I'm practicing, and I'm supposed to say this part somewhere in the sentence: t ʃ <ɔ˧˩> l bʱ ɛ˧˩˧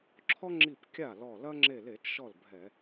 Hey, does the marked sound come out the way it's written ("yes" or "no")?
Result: no